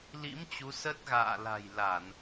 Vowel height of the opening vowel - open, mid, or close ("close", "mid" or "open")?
close